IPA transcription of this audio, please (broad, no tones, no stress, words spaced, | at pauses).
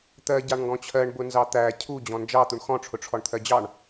t̪ɜ ɟɑɳŋɡɔ̃t͡ɕʰɜɳ bʊnzɑt̪æ cʰu d͡ʑɔ̃nd͡ʒɑ t̪uɳxɔ̃ ʈ͡ʂʰʊʈ͡ʂʰɔɳt̪ʰɜd͡ʑɑɳ